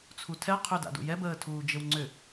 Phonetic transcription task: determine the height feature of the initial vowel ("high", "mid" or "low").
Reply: high